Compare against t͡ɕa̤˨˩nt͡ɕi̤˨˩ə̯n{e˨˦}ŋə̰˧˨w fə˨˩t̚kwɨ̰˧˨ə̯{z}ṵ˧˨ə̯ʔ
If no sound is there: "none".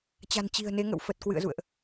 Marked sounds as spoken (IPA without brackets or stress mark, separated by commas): e˨˦, z